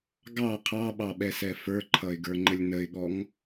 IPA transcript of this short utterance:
ɡɑ qʰɑɓɑɓɛsɛ fə˞ǃʰʌɪ̯ɡə˞ŋ͡ǃəlʲ nəɪ̯ɠɔŋ

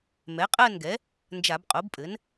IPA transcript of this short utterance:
mɛ˩˥qʼɜ˥˨nɡɛ˩˥ | nd͡ʒa˧˩˧bqʼo˩˥bpʼɘ˩˥n

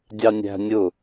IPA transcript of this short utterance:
dʲɑnʲæ̤ nʲʊ

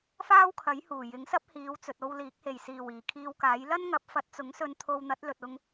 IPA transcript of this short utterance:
faː˥wkʰɐ˨˥j huː˨˩jɪ˨˥ŋsɐ˥p̚ hiː˨˧wt͡sɵ˨t̚o˧w liː˨˥k̚ he˨˩jsiː˨˩w iː˨˩kʰiː˧wkaː˨˥j lɐ˥nŋɐ˨˥p̚ fɐ˨˥t̚t͡sʊ˨˥ŋsɵ˧n t̪ʰo˧wn̪ɐ˨˥t̚lɵ˨t̚ʊ˧ŋ

